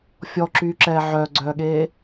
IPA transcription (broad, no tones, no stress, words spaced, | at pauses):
fʲɔǁyːǁɛː ʕœːɡ͡ǀœːɠeː